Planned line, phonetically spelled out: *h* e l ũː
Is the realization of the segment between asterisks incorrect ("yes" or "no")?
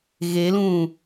yes